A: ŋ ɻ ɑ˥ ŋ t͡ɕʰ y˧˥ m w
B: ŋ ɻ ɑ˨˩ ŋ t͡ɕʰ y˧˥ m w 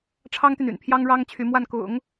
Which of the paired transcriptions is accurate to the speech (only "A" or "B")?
A